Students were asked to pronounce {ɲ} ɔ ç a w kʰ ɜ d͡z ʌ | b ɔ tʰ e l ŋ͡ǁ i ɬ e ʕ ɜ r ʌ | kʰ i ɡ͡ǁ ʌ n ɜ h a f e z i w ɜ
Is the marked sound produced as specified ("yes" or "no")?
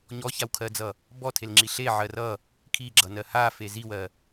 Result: yes